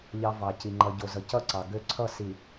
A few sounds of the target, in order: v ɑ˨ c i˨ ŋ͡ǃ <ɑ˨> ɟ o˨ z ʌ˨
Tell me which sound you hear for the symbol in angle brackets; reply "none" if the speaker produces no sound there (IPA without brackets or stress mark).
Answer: ʌ˨